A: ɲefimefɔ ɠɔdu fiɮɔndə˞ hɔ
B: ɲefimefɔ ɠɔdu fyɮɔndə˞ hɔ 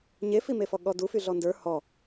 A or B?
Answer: B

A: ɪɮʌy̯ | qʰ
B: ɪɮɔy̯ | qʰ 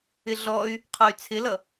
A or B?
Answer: B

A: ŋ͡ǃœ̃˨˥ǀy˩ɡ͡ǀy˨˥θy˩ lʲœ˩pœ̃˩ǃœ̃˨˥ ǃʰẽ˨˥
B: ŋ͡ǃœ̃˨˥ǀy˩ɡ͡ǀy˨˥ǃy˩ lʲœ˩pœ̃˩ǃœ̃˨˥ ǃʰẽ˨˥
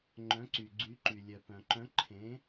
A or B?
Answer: B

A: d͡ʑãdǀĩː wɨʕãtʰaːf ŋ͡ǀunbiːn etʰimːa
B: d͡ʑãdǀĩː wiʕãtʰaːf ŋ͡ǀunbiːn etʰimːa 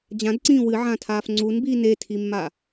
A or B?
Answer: A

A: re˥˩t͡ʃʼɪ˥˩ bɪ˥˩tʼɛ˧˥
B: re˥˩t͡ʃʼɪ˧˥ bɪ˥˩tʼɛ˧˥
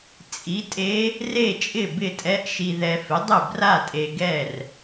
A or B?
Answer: A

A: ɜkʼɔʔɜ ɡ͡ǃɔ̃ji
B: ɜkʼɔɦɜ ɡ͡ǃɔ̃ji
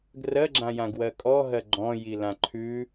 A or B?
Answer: B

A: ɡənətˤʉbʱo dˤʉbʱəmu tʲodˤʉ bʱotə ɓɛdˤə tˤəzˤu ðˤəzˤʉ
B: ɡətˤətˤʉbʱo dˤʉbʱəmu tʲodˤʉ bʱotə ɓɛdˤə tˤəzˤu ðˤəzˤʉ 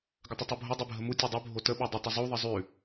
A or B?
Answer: B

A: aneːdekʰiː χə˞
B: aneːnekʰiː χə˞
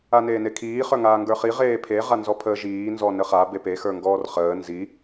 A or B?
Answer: B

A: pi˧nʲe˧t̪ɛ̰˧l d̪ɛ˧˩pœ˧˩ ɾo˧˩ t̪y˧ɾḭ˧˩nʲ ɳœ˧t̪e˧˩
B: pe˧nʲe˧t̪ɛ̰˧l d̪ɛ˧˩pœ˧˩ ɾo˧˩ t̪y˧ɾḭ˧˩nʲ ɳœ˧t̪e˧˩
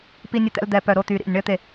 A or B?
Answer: A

